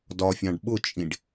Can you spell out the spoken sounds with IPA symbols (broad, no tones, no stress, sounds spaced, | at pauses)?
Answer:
d ɒ fʲ ɑ̃ ɖ ɓ ʊ t͡ʃʼ ĩ ɖ